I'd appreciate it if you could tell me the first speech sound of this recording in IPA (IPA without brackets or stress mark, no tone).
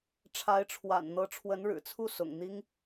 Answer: ʈ͡ʂʰ